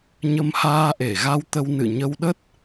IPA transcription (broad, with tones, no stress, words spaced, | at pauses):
ɲə˧mhaː˧ʔe˧˩ɣa˧w t̪ə˧w nɨ̰˧˨ɲə˧wɗə˦˥t̚